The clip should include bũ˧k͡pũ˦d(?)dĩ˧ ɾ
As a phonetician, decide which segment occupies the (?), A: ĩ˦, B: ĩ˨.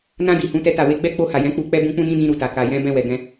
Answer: A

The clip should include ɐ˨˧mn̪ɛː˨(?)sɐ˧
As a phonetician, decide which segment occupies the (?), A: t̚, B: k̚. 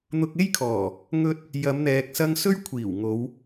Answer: B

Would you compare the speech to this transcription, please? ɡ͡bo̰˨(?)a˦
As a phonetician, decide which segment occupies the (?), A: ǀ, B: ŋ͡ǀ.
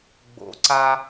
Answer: A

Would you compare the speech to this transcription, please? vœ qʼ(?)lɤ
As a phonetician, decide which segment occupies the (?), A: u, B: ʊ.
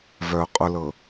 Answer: B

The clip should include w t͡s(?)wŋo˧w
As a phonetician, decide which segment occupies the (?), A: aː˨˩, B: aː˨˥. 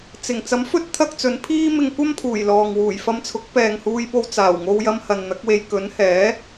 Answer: A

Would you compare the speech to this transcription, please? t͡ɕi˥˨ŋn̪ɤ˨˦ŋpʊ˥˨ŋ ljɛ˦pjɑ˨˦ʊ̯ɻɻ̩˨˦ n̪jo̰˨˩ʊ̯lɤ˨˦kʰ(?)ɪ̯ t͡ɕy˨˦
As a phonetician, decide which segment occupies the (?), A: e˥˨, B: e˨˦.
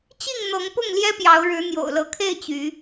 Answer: A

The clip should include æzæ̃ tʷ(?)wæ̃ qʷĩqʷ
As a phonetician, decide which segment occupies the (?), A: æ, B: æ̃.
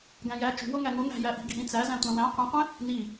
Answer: B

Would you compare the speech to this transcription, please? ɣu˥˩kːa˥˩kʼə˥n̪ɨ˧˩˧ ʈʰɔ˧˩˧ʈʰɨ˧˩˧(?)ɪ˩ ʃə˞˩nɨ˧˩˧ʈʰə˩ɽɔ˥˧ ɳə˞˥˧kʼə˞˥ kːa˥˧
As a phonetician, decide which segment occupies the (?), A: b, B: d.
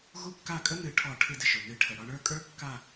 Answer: B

